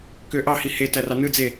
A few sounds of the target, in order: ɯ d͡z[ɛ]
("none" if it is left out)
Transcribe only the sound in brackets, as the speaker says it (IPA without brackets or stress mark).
e